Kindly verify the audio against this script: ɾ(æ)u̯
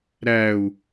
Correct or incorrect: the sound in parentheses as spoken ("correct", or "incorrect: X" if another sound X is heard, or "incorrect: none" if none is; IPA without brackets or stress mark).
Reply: correct